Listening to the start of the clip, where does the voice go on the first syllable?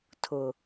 low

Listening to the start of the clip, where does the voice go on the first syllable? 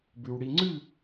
low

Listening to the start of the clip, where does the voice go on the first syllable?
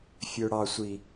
high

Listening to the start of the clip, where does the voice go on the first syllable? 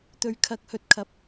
low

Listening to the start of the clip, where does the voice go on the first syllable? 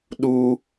high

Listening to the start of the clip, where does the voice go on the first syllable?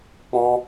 high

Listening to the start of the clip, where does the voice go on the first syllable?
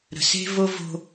low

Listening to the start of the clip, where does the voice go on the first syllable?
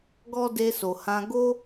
high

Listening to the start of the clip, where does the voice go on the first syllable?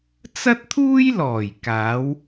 high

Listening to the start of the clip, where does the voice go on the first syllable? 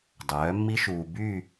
rising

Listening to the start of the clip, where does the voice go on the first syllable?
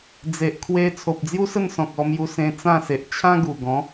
low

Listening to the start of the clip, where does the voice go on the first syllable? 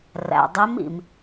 low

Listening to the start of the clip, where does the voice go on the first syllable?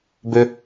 high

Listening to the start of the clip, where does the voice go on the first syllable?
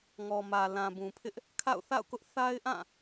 low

